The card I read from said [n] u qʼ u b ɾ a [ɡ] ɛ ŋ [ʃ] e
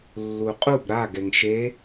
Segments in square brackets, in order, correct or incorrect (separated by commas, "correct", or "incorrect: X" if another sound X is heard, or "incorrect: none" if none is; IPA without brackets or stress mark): incorrect: lː, correct, correct